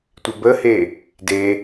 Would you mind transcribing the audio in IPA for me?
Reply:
tʷ ɪ b ə h e | d e

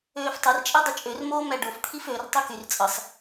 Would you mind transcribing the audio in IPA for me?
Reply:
øː f tˤ ɯ r t͡ʃʼ e dˤ y t͡ʃʼ ø r m oː m æ ɖ o f t̪ʰ i f ø r tˤ u k y r t͡sʼ ɯ sˤ

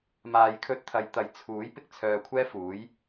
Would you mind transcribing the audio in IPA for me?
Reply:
m aː˨ j kʰ ɵ˧ t̚ t̪ʰ ɐ˨ j t̪ ɐ˨ j t͡sʰ uː˨˥ j p ɪ˥ k̚ t͡sʰ œː˧ kʷʰ ɛː˥ f uː˨˥ j

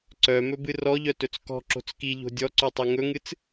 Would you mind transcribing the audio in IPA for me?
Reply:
ǀ œ m ɵ b ɨ r ɔ ʎ œ t ɵ t͡s k ɔ̤ ǁ o̤ t͡s k i ʎ o̤ dʲ ɔ ǀ o tˤ i ŋ ɵ ŋ ɨ t͡s

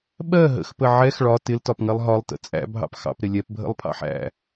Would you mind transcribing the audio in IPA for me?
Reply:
ɓ ɜ ɦ ə̰ x p ə ʕ ɛ x ɭ ɒ t ɪ l t ɒ p ŋ ɜ lˠ ɦ ɒ lˠ t ə̰ t͡sʼ æ̰ bʱ ɑ̰ p x ɑ̰ p ɾ ɪ lʲ ɛ p bʱ ə̰ lˠ pʰ ɑ̰ ħ æ̰

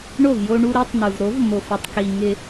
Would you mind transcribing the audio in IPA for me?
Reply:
ɳ o˦˨ v j o˧ ɳ u˧ ɾ e˦ tˤ n̪ u˨ v ɾ o˨˦ v m o˨ f ʊ˨ tˤ k i˨ ŋ ɪ˧

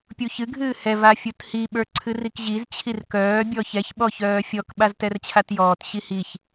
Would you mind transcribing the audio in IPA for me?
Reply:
pʲ u ç ɨ ɡʱ ɨː h ɛ v a fʲ u t h i ɓ ə˞ ǀʰ ɨ r i k ʑ i z t͡ɕʰ i r k œː bʲ ɔ ç ɛ ç ɓ ɔ ç œː fʲ ɔ k ɓ a z t ɛ r t͡ɕʰ a t j ɔː t ɕ i h i ç

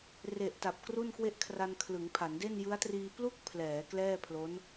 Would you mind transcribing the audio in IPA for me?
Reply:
r e˨˩ ʔ t a˨˩ p̚ k r u˥˩ n k w e˥˩ ʔ kʰ r a˧ n kʰ l ɯ˩˦ ŋ pʰ a˩˦ n d e˥˩ n j ɯ˦˥ a̯ t r iː˧ p l u˥˩ k̚ pʰ l ɛː˩˦ k l ɛː˥˩ pʰ l o˦˥ n

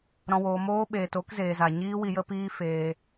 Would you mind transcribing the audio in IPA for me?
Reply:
ɾ ɔ̃˨ w oː˨ m oː˧ ɓ eː˨ t o˦ k z eː˨ z a˨ ɲ iː˧ w i˨ j ə˧ p iː˧ f eː˧

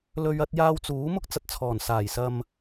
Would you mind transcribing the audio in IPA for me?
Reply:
l ɵ˧ ɥ ɐ˥ t̚ j aː˥ w t͡s uː˨˥ m ʊ˥ k̚ t͡s ɐ˧ t̚ t͡sʰ ɔː˨˩ n s aː˨˩ j s ɐ˧ m

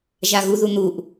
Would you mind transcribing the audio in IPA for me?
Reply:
ʒ a ɣ u ð u n̪ u ʔ

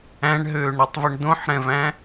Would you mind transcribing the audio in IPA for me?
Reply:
æ̃ ɳ ɦ øː ɳ ɾ ɛ tˤ v u ɳ d õ ħ ɾ ɛ̃ v æ̃

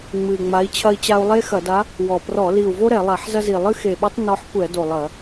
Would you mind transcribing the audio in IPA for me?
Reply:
ŋ͡m ɨ˨˩ i̯ ŋ͡m a˧˥ i̯ t͡ɕʰ ɐ˥ i̯ t͡ɕ a˥ u̯ lˠ e˥ x ɐ˧˩˧ d a˧˥ | w ɔ˨˩ p r ɔ˧˩˧ l i˨˩ u̯ v o˥ ɾ ɛ˧˩˧ lˠ a˧˩˧ ħ z ɐ˥ z i˨˩ lˠ ɨ˥ x e˨˩ ɓ ɐ˥ tˤ n ɔ˧˥ ħ kʷ ɛ˧˩˧ d o˨˩ lˠ ɐ˧˩˧

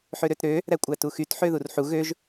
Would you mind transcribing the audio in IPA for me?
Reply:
ħ ø ɾ ø t ɾ ø | ɾ æ kʷʼ æ t u x y t ħ ø ð u r ħ u ɣ ø ʒ

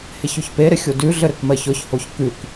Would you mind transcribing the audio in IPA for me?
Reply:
h e ç ʉ ç p e ɾ ɪ xʲ o d ʉ ɮ ɘ ɾ ɘ k m ɜ ç ɔ ç h o ç k ʉ k

